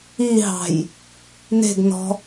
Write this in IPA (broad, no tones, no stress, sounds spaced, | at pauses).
i ɦ ɑ̤ j | n e̤ ɡ n ɔ̤